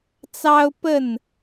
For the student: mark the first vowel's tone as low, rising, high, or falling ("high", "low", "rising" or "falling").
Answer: high